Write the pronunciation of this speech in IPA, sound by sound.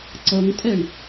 ǀ ʌ ŋ tʼ ɛ ɳ

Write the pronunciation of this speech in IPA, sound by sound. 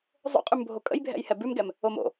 zˤ o̰ qʼ ʉ m bʱ o kʼ ə̰ j bʱ ɛ̰ j h ɛ b ʉ m ɡ ɛ m | o m o̰

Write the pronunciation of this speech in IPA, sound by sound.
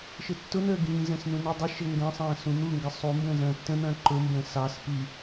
ʃ ɘ tː ʊ n̪ əː ɡ ĩː z ə̃ː s n ũ n i dˤ i ʃ ɘ ŋ ɡ ɐ̃ sˤ ɐ̃ː s ũ n̪ u ŋ ɡ ə sˤ u m b ə̃ː z ɐ̃ː tː ə̃ n̪ ɐ̃ː ǃ ʊ m b ə̃ː s ɑ s p i

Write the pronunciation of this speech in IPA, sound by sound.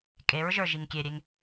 kʼ e ɹ ʒ ə˞ ʒ i ŋ kʲ e ɾʲ e ŋ

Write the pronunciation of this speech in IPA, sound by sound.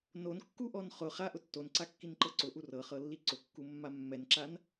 n o n kː u ʔ ɔ n χ ʊ χ a ʔ ʊ tː o n ǀ a kː i n ǃ ɤ ǀ ʊ ʔ u r ɤ χ ɤ lː i ǀ ʊ kː u mː a mː ɛ n ǁ a n

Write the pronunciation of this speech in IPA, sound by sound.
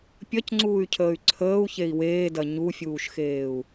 pʲ ɐ c ŋ͡ǀ uː y̯ cʰ əː y̯ ǀʰ əː u̯ ç e i̯ w eː d ɐ ɲ u fʲ uː ʃ x eː u̯

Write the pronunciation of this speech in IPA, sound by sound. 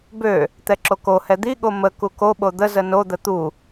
b ø | t̪ ɛ ǁ o k o h ɛ d̪ i ɠ o m ə k u k o ɓ o d̪ ə z ə n o d̪ ə t̪ u

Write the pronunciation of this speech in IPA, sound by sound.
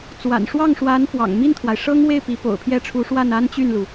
t͡s w a̰˨˩ n ʂ w ɑ˥˩ ŋ ʂ w a˧˥ n f w ɑ̰˨˩ ŋ m i˥˩ n t̪ʰ w a˩ ɪ̯ ʂ ɤ˥ ŋ w e˥˩ ɪ̯ p i˧˥ p o̰˨˩ ʊ̯ pʰ j ɛ˥˩ ʈ͡ʂʰ u˧˥ ʂ w a˥˩ n a˥ n t͡ɕ y˥˩ n l u˩

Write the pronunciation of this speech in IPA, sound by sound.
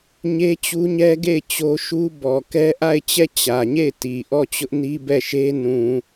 ɲ e˦ t͡ɕ u˦ ɲ ɛ˦ ɡ e˦˨ ɪ̯ t͡ɕ o˦ ʃ u˦ b ɔ˨ k ɛ˦ ʔ a˦˨ ɪ̯ t͡ɕ ɛ˦˨ t͡ɕ ä˨ ɲ e˦˨ ɪ̯ t i˨ ʔ ɔ˦˨ t͡ɕ ʊ˦ ʔ n i˦ b ɛ˦˨ ʃ e˦ n ũ˨

